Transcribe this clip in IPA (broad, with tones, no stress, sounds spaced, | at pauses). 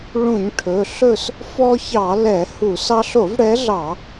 ɭ ũ˧˩˧ ɲ ʈʰ ɵ˩˧˩ ɬ ɵ˦˨ s | f ɔ˦ ç ɑ˧˩˧ l ɛ˧˩˧ h u˧˩˧ s ɑ˦ ɬ o˧˩˧ v ɽ ɛ˨˦ ɮ ɑ˧˩˧